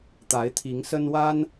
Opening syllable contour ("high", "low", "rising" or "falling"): rising